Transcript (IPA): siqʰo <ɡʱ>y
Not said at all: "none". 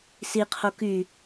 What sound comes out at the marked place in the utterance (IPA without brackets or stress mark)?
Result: k